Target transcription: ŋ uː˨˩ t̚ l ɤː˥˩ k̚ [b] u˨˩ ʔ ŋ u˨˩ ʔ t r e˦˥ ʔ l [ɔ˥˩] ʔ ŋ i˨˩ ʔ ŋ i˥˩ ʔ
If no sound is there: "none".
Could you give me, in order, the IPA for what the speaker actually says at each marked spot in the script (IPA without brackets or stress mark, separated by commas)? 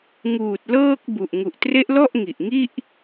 b, ɔ˥˩